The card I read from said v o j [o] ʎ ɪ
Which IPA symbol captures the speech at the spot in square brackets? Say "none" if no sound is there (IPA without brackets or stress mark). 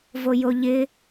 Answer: o